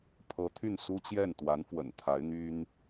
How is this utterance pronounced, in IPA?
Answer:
pʰ ɤ˧˥ t̪ʰ y˥˩ n s u˥ t͡ɕ j ɛ˥˩ n t̪ w a˧˥ n f w ə̰˨˩ n t̪ʰ a˧˥ ɪ̯ n̪ y˥ n

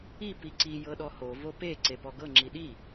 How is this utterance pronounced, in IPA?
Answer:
i p i ǀ i j ɤ ɗ ɔ h o v o p e ǀ e p ɔ ɡ ɤ ŋ͡ǁ i ɗ i

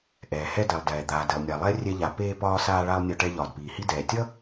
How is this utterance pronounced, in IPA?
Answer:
ʔ ɛː˩ h ɛ˧ d ɛ˩ lˠ d ɛː˩ d̪ aː˩ d e˩ lˠ nʲ a˩ lˠ ɛ˧ rʲ ɛ˧ ʎ a˩ p eː˧ p ɒː˧ s aː˧ ɭ a˧ lˠ nʲ ɒ˧ ʈ ɛ˧ ʎ ɒː˩ d p iː˩ h i˧ d ɛː˩ tʲ ʌ˥

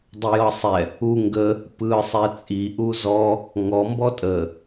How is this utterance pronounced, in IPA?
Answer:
dˤ ə j ɤ sˤ ɛ | u ŋ ɡ ə | p ɯ sˤ ɛ t͡sʼ i ʔ u z ɔ | ŋ ɔ m b ɔ tʼ ə

